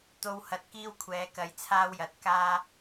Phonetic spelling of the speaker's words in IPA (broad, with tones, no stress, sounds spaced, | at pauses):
t̪ o˨ w h ɐ˨ t̚ k iː˧ w kʷʰ ɛː˨˥ k ɐ˨˥ j t͡sʰ aː˥ w j ɐ˨˥ t̚ k aː˥